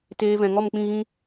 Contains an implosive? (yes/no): no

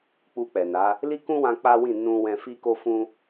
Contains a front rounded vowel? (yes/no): no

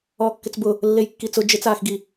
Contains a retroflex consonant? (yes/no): no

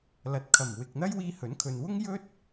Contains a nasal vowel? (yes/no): no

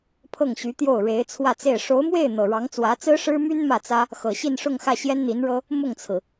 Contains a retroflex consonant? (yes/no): yes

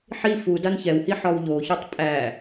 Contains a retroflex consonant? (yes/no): no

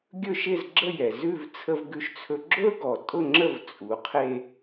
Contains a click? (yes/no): yes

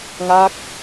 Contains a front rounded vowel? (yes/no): no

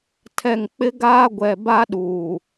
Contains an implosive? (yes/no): yes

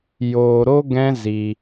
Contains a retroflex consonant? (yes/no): no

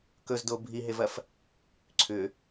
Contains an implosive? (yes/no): no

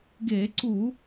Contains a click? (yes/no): yes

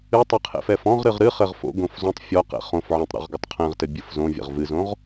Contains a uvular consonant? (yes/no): yes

